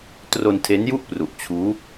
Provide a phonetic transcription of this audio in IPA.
t r o˧ n tʰ e˦˥ n j u˥˩ ʔ p r u˨˩ ʔ t͡ɕʰ uː˦˥

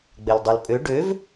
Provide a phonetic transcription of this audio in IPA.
ɡ͡b ɛ l dˤ ø l pʼ ø ɖ ø v

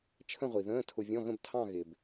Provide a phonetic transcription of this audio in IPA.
t͡ʃʰ ə̃˥˧ ʁʷ i˩ ð ə̃ː˧˥˧ tʰ ʊ˧ vʲ ɔ̃˧˥˧ ɣ ə̃˥˧ b tʰ ɑ̃˥˧ ɣ ɪ˩ b

